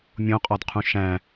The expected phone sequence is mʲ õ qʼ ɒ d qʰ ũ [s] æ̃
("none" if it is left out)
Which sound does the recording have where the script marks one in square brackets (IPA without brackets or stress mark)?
ʃ